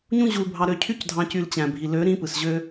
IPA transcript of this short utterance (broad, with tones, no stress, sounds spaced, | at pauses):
ɲ ũ˦ ʑ u˧ l bʱ ɑ˧ ɾ ø˧ cʰ y˦ c dʱ ɑ̃˧ c y˧ l t͡ɕ æ̃˨ bʱ i˨ l ø˨˦ ɾ ĩ˧ p ɯ˨ s ʑ ø˧